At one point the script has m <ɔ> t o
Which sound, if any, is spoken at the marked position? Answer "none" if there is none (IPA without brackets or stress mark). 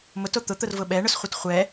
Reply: ʊ